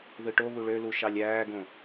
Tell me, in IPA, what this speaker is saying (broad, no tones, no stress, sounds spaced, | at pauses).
ð ɯ ʈ o β u ɭ ø l u ʃ ɑ lʲ æː ɡ õ